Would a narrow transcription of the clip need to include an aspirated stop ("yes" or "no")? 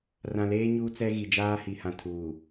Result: yes